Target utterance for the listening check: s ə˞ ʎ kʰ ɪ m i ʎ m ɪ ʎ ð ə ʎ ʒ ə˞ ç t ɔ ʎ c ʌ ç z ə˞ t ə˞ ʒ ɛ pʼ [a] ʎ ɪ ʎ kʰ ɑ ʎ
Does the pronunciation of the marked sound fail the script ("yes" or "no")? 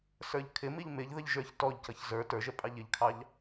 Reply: yes